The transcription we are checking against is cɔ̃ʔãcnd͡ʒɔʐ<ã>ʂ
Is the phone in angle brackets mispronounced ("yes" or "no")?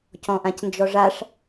yes